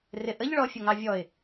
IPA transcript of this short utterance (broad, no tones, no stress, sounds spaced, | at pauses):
r ɪ ʔ ə ʎ ɭ ɔ fʲ ʊ ŋ ɑ vʲ ɔ ɪ̯